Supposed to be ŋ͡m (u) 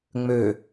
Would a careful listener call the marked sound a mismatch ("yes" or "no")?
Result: yes